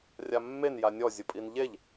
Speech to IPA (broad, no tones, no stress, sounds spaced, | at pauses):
rʲ a mː e n j a nʲ ɔ zʲ ʊ pʼ i n ʎ e ʎ